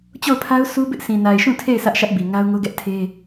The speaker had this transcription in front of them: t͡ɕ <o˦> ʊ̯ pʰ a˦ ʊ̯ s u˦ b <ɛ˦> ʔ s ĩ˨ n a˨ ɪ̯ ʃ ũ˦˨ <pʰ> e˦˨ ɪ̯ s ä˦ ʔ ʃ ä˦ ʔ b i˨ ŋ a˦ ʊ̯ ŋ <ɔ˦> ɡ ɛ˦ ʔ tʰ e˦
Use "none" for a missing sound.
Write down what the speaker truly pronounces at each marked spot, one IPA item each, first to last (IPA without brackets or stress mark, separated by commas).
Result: o˦˨, ɪ˦, tʰ, o˦